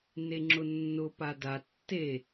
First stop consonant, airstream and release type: click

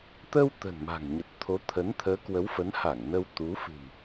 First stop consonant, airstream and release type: plain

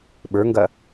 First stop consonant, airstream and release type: implosive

